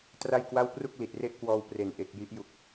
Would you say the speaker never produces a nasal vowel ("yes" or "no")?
yes